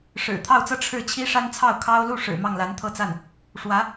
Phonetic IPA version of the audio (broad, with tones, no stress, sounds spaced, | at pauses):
ʂ ɻ̩˨˩ t̪ʰ ɑ˥˧ ʊ̯ t͡s ɤ˥˧ ʈ͡ʂʰ ɻ̩˥˩ t͡ɕʰ i˥ ʂ a˥ n t͡sʰ ɑ˥˩ ʊ̯ kʰ ɑ˥ ʊ̯ l u˥˩ ʂ ɻ̩˨˩ m ɑ˥˩ ŋ l a˧˥ n t̪ʰ ɤ˥˧ t͡s a˥˩ n | ʂ w ä˧˥